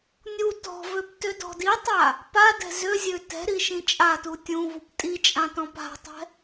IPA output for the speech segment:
nʲ u t ɔ̤ v ø p t ø d ɔ̤ d i tˤ a | p a d ɛ̤ z ø zʲ ø t ɛ̤ ɾ i ʃ ĩ t͡ʃʼ a t u tʲ ũ v u p tʼ i t͡ʃʼ ã t ɔ̃ p a̤ tˤ ɛ̤

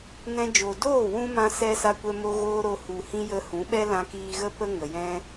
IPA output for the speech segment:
n ɛ̃˦ d͡ʒ o˨ d oː˦˨ w ũ˧ m ã˦ s ɛ˧ s a˧ kʷ ɛ˧ m o˧ ɣ oː˦ ɾ o˧ h u˧ h ĩ˦ j ə˧ h ũ˨˦ ɓ ɛ˦ l ã˧ k iː˧ ɣ ə˦ p ə˧ ŋ ə˨ j ɛ̃˦

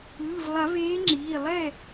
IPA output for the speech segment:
ɯː˩˧˩ v lˠ a˨˩˦ v eː˨˦ ŋ͡ǁ iː˩˧˩ lˠ ɛ˥˨

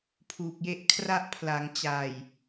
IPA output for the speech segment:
pʰ uː˨˩ k̚ j e˦˥ ʔ kʰ r a˦˥ ʔ pʰ l a˩˦ ŋ t͡ɕ a˨˩ j

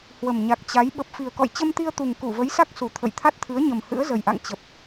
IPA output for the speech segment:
h w ə˨˩ m ɲ a˨˩ k̚ t͡ɕ a˨˦ j ɓ ə˨˩ p̚ f i˨˩ ə̯ k ɔ̰˧˨ j t͡ɕ ə˧ m t̪ i˧ ə̯ t̪ u˨˩ ŋ k u˧˩ v ə˨˦ j s a˦˥ k̚ s u˨˩ t̪ʰ ə̰˧˨ j t̪ʰ a˦˥ t̚ t̪ʰ ɨ˨˦ ə̯ ɲ ə˨˩ m h ɨ̰˧˥ ə̯ z ə˨˩ j ʔ a̰˧˨ ŋ t͡ɕ ə˨˩ p̚

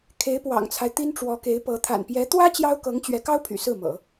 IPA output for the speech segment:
kʰ e˧˥ ɪ̯ p w ɑ̰˨˩ ŋ t͡sʰ a˦ ɪ̯ t̪ i˥ n ʈ͡ʂ w ɔ˧˥ k e˧˥ ɪ̯ p ɤ˧˥ t̪ʰ a̰˨˩ n p j ɛ˧˥ t̪ w ä˥ t͡ɕ j ɑ˥ ʊ̯ k ɤ˧˥ ŋ t͡ɕ ɥ ɛ˧˥ k ɑ˥ ʊ̯ pʰ y̰˨˩ s ɹ̩˥˩ m ɤ̰˨˩˦

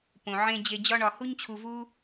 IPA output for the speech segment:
p õ˨ ʕ ẽ˧ d͡ʑ e˧ d͡ʑ ɒ˦ ɳ ɒ˧ h u˦ ɲ t͡ɕʰ u˧ v u˦

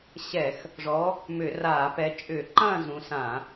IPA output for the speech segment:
ɕ ɛ˧˩˧ x | ʐ ɔ˨˦ | m ʏ˧˩˧ r aː˧˩˧ p ɛ˨˦ t͡ʃʼ ʏː˧˩˧ ǃ ɐ̃ː˥˨ z ũ˨˦ s ã˧˩˧

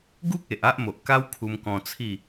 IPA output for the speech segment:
ɡ u˦ k̚ e˨ ʔ a˦ ʔ m o˨ ʔ k a˦ w kʰ u˧ m k ɔ̃˧ t͡sʰ i˥˧

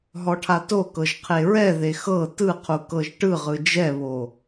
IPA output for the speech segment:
ɦ ɔ ʈʰ a t o k ɤ ʒ qʰ e ɹ ɛ ð e x ɤ t ɯ qʰ u k ɤ ʒ ʈ ɯ ʁ ɯ d͡ʒ ɛ β o

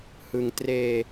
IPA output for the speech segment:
h ɯ˧ ŋ t r eː˧

